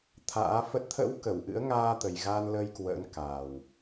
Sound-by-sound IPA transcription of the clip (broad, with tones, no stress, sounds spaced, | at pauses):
t̪ʰ a̰ː˧˥ f ə˦˥ t̚ t̪ʰ ə̰˧˥ w k ə˧˩ w ʔ ɨ̰˧˥ ə̯ ŋ aː˧ t̪ ə˨˩ j ɣ a˧ n l ə˧ j k w ə̰ː˧˥ n k a˨˩ w